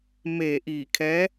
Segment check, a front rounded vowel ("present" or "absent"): absent